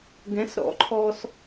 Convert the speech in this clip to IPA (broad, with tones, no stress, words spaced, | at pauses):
ɡɛ̃˨˥sɾɔ̰˨˥ǃʰɔ˧s